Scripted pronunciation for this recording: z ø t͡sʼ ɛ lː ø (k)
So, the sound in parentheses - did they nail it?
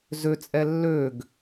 no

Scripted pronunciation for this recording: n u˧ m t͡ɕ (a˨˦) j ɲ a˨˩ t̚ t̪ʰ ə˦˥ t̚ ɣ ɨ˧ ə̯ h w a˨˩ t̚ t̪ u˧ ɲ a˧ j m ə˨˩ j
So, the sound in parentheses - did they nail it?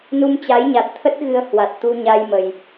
yes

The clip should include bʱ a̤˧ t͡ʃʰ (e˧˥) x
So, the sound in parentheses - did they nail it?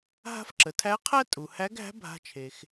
no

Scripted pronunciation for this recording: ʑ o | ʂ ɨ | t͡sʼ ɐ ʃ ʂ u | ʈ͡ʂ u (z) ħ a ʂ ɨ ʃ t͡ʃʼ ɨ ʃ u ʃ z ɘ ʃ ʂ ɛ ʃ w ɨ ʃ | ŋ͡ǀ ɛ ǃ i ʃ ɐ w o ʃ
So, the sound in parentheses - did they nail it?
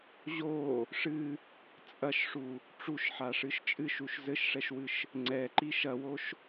no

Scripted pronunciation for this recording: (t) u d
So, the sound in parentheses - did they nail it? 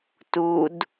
yes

